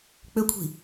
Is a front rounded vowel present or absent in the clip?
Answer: present